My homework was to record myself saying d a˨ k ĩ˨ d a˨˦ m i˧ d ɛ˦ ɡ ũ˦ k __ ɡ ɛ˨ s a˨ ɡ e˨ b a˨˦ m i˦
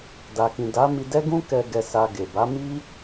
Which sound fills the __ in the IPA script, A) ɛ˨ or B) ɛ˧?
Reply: B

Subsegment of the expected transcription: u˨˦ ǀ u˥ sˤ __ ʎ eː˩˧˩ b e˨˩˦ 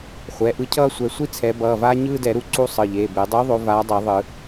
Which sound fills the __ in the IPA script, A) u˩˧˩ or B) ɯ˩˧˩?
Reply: B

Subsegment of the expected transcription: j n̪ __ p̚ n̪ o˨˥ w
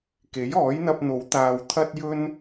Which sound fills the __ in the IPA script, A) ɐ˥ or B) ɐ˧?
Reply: B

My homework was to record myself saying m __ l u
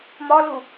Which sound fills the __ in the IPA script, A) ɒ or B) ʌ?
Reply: A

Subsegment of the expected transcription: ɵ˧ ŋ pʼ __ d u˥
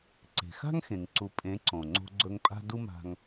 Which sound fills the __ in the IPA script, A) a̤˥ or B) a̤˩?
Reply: A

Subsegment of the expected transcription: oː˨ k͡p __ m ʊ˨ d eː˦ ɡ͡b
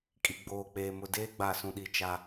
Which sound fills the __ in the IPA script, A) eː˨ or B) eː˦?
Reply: A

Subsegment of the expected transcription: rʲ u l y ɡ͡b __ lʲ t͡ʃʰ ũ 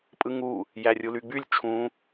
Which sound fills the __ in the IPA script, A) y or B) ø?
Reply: A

